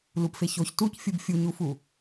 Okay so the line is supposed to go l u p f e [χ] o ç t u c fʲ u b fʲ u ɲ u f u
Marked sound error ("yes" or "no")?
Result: yes